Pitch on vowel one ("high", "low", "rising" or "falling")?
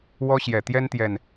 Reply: high